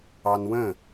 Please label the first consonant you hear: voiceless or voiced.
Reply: voiced